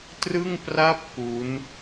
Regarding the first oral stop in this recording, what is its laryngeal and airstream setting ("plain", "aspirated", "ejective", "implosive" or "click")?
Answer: plain